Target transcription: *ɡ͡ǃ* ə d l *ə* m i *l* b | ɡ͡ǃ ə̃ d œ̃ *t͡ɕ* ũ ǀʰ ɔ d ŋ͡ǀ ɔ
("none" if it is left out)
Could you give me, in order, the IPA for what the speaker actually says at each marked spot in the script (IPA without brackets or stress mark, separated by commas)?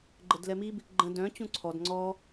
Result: ɡ͡ǃ, ɛ, none, t͡ɕ